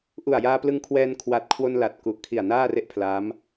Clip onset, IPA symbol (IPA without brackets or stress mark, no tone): ʔ